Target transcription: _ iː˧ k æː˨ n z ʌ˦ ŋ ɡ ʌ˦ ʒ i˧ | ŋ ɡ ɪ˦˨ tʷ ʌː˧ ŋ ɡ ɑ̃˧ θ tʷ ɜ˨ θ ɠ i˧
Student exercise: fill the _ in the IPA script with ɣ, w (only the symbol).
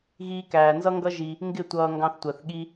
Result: ɣ